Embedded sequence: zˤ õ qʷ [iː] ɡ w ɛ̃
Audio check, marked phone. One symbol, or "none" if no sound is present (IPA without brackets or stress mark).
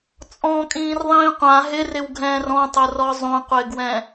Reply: ɪː